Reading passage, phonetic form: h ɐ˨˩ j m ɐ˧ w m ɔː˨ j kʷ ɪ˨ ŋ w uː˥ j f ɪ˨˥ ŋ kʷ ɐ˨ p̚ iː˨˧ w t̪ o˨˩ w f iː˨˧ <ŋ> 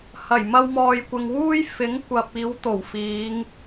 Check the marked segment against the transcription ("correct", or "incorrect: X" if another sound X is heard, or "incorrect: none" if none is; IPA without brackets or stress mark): correct